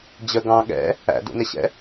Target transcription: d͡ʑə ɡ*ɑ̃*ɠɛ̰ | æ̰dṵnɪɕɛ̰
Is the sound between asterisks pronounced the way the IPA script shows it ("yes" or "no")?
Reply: yes